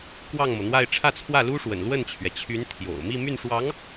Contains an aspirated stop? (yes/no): yes